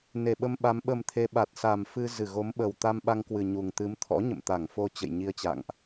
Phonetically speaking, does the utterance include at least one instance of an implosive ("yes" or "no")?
yes